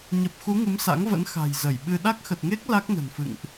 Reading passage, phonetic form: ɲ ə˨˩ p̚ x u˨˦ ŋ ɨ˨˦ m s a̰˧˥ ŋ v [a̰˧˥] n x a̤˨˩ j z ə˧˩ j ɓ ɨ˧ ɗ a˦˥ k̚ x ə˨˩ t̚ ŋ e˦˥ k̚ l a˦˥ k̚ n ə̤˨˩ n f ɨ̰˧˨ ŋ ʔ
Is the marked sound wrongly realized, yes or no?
yes